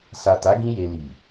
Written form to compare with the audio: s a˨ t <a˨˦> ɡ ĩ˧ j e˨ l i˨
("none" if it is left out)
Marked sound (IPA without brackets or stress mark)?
a˨˦